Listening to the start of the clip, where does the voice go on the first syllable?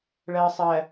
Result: low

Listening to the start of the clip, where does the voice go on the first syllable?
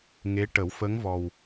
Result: rising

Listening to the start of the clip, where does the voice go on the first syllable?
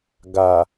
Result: low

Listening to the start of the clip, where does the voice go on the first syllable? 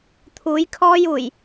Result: rising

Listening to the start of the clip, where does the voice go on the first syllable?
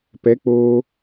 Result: rising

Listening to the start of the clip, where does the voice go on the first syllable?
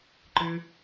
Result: high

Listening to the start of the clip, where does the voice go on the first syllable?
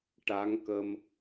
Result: rising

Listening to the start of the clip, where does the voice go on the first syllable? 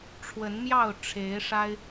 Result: rising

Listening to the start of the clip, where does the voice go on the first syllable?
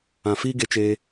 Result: low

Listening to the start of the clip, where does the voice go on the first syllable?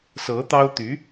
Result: rising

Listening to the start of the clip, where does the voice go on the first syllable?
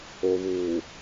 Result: low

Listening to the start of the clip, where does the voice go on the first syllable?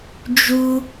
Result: high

